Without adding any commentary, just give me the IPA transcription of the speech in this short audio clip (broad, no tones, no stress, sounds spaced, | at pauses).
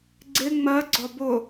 ɡ͡ǀ ɪ ŋ͡m ɜ ɡ͡ǀ ɒ b ʊ